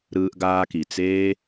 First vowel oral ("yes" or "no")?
yes